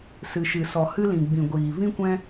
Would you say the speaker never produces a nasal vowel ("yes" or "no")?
no